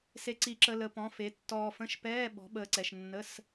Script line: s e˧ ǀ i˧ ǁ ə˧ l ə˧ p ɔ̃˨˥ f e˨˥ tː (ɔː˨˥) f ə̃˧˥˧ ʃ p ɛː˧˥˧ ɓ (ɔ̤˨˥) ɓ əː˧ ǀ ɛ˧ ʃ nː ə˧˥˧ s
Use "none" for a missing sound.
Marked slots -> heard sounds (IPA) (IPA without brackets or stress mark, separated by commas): ɔː˧, ɔ̤˨˥